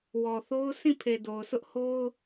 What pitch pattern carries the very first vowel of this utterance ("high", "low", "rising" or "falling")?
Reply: low